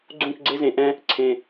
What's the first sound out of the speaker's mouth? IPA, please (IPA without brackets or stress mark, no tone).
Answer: ɡ͡ǀ